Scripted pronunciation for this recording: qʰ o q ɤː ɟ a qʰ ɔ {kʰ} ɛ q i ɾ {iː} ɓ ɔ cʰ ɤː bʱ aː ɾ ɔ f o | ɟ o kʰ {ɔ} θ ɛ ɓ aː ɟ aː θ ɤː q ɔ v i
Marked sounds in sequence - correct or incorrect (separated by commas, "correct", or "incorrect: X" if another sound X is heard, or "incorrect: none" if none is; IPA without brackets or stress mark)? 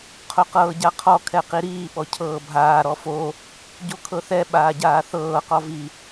correct, correct, incorrect: ɤ